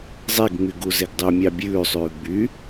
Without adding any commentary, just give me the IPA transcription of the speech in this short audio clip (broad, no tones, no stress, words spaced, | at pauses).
zˤeɡŋ͡my ɡuzeɡdˤømʲɑ bʲʉːsˤʉː ɡ͡by